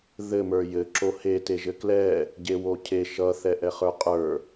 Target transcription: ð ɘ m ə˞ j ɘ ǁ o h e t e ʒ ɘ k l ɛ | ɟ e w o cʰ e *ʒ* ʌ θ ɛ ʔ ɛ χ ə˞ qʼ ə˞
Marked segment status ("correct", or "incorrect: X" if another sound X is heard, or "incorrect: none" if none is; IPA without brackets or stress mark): incorrect: ʃ